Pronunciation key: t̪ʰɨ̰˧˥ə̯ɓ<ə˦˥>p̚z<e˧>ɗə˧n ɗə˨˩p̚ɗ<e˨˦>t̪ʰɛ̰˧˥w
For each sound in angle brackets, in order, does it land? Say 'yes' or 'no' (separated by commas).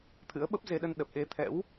yes, yes, yes